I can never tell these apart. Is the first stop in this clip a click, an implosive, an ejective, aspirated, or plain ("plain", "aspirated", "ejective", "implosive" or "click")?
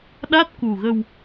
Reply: implosive